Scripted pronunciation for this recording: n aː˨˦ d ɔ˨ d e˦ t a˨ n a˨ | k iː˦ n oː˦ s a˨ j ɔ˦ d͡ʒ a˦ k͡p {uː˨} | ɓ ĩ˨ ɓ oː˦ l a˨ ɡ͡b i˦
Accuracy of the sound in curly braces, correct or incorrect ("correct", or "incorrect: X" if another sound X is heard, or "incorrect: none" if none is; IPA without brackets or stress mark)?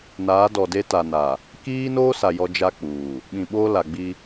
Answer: correct